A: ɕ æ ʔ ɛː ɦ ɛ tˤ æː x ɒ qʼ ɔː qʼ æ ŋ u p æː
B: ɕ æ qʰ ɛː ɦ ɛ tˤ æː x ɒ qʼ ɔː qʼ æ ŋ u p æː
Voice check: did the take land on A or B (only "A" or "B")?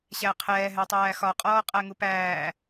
B